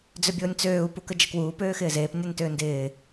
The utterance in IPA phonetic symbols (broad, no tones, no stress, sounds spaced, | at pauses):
d͡z ʏ bʲ ʊː nʲ t͡s øː u̯ p u k ə d͡ʒ ə k w uː p øː x ɪː z eː p nʲ a n t ʏː n d ɪː